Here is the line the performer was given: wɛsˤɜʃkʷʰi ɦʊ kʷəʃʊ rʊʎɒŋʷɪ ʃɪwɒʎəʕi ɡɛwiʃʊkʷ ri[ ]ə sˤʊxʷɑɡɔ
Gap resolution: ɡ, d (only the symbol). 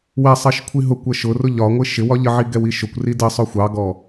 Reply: d